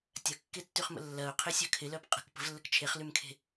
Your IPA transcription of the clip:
tʲ ɐ kː e tː y χ m ə̰ lː ɐ ʊ̯ qʰ ɪ sʲ œ kʰ ɪ l œ p qʼ ə̤ k p ə̤ v lː ə k t͡ʃʰ e χ l y m kʰ e̤

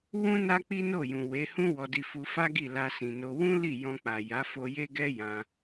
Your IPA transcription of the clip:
w ũ˦ n a˦ k͡p i˦ n o˦˨ j ũ˨ w e˨˦ h ũ˦ w ɔ˧ d i˧ f u˧ f a˦ ɡ i˦˨ l a˧ s ĩ˨ n o˧ w ũ˦ l i˦˨ j ɔ̃˧ k͡p a˨ j a˨˦ f o˧ j e˦ ɡ ɛ˦ j ã˧

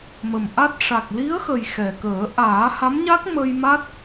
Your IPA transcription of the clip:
m ə˨˩ m ʔ a˦˥ t̚ ʂ a˨˩ k̚ l i˧˥ ə̯ x ə˨˩ j x ɛ˨˩ k əː˨˩˦ ʔ aː˨˩˦ h a˧˥ m ɲ a˦˥ k̚ m ə˧ j m a˦˥ t̚

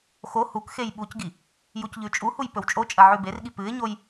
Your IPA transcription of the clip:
x o h u k x e j ɓ u c ɡ i | j u c ʎ ʉ t͡ʃʼ u h u j p ɵ w t͡ʃʼ o t͡ʃʼ ɐ ʕ ʉ b e r ɠ i p ɨ ɪ̯ ɲ o j

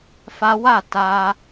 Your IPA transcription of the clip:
f a˦ w a˦˨ t a˧

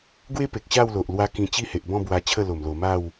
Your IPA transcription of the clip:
ɡ w e˦ p e˨ k̚ ɕ a˥˧ w l o˨ ʔ l w a˦ k ĩ˧ t͡ɕ i˦ h e˨ ʔ b ɔ̃˥˧ b w a˧ t͡ɕʰ ə˥˧ l o˨˩ m l o˨˩ m a˥˧ w

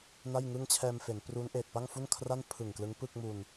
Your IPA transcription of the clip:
n a˥˩ j ŋ ɯ˥˩ ŋ t͡ɕʰ ɛː˧ m f e˩˦ n p r u˦˥ n ʔ eː˨˩ t̚ p a˥˩ ŋ f u˥˩ n kʰ r a˥˩ n pʰ ɯ˨˩ ŋ k l ɯ˦˥ ŋ p ɯ˥˩ k̚ m u˧ n

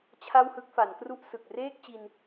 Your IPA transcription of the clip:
t͡ɕʰ a˥˩ w h ɯ˥˩ k̚ f a˩˦ n k r u˥˩ ʔ s ɯ˨˩ k̚ r eː˥˩ k̚ t͡ɕ i˧ n

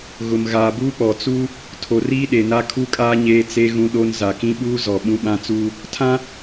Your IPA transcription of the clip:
ɣ ʊ˨ m ɣ aː˨ b uː˦ k͡p ɔ˨ t͡s u˦ | tʰ o˨ r iː˦ ɗ e˨ n a˦ kʰ u˦ kʼ aː˦ ɲ eː˦ t͡s e˦ ɣ ũ˦ ɗ o˦ n z a˨ k ĩ˦ ɓ uː˦ z ɔ˨ ɓ ũ˦ ɓ ã˦ t͡s uː˦ | tʰ ã˦

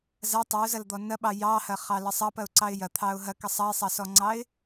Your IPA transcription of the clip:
z ɐ tˤ ə ʊ̯ z ɐ l d̪ ɔ n ɐ ɓ ɑ j ɑ h ɐ χ ɑ l ə sˤ ɑ p ɐ ʊ̯ ǀ ɑ ɪ̯ j ɐ t̪ʰ ɑ ʊ̯ ɦ ɐ k ə sˤ ɑ ɪ̯ sˤ ɑ s ɔ ŋ͡ǀ ɑ ɪ̯

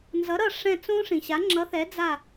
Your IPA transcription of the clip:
n z ʌ˨˥ ɾ ʌ˦˨ ʂ ɛ̃˦˨ t͡s õ˦˥ ʂ ĩ˨ ɕ a˨˥ ŋ͡ǁ ʌ˨˥ θ ɛ˨˥ d͡z a˦˨

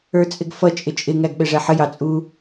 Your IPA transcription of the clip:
ə˞ t͡sʼ ɪ ɡ f ʌ t͡ʃʼ ɪ t͡ʃʼ ɪ ŋ æ ɡ ɓ ɛ ʐ æ ħ ə j ɑ t͡sʼ u

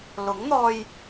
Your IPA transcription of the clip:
l ʊ˨˥ ŋ n̪ ɔː˧ j

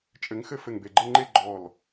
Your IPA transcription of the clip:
t͡ʃʼ ɘ˨˦ ŋ x ɘ˥˧ f ɘ˧˩ ŋ b e˧˩ ɡ͡ǃ ɘ˥˧ ŋ͡ǃ e˥˧ ɡ͡ǃ ɔ˧˩ l

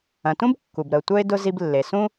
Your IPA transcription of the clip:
ɐ̃˩ t ũ˥ b kː u˩ b ɾ ə˩ ʊ̯ tʷ œ˥ ɪ̯ d ʊ˧ z i˧ b lː e˩ s ũ˥

